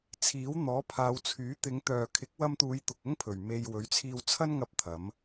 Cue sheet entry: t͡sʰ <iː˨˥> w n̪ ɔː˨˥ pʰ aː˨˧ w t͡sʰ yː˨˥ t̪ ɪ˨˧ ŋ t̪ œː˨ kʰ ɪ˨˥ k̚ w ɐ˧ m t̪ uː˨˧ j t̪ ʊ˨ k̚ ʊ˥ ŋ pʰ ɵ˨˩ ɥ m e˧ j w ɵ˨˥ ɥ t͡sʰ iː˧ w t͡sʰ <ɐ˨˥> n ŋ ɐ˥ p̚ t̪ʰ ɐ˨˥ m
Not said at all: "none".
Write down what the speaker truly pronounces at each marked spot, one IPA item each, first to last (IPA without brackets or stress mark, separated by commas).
iː˨˥, ɐ˥